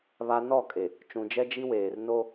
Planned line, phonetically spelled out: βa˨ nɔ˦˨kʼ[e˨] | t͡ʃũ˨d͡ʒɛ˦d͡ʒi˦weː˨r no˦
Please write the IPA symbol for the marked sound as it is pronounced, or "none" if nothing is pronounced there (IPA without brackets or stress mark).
e˨